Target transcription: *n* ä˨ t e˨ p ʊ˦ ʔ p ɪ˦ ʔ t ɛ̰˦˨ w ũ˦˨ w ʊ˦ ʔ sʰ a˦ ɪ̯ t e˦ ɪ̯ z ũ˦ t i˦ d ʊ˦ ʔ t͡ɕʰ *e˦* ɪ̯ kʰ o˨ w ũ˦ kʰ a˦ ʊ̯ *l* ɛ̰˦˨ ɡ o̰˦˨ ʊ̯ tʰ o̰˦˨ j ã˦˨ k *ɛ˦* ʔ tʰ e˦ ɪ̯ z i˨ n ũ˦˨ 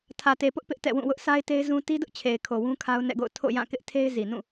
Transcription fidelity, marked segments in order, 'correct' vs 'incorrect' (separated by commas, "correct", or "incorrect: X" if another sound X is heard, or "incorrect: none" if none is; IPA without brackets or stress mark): incorrect: tʰ, incorrect: e˨, incorrect: n, incorrect: ɪ˦